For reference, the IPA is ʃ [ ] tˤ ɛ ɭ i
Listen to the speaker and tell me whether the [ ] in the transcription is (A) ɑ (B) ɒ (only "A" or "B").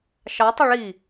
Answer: A